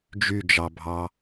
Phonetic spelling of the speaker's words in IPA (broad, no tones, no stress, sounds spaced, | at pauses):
d͡ʒ y d͡ʒ ɑ bʱ ɑ